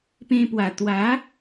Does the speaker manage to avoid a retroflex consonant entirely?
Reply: yes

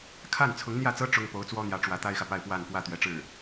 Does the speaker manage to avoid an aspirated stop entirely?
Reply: no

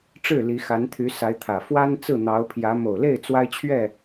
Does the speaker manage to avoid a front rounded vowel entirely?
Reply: no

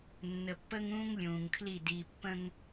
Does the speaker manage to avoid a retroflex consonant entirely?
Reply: yes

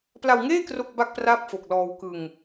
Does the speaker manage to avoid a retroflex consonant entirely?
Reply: yes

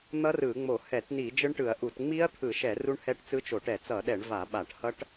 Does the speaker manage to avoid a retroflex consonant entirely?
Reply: no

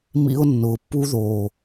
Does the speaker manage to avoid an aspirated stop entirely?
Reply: yes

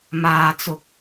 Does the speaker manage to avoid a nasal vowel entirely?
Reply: yes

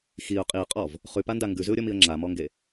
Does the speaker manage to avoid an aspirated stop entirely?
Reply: yes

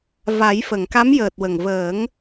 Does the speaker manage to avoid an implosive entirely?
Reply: yes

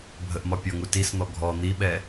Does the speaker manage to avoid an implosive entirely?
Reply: no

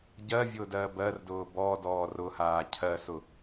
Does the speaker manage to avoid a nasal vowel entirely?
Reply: yes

